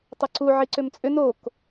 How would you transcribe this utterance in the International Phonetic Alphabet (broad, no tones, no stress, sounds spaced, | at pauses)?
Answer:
tˤ ɘ ǀ u ʕ i ǀ ʏ m t͡sʼ ʏ n o k